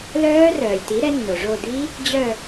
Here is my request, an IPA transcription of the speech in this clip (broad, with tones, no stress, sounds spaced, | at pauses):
l œː˦˥ r œː˩ lʲ t i˩˥ ɾ ɛ˩˥ nː o˩ ʐ o˦˨ d̪ i˦˥ | d͡ʑ œ˦˨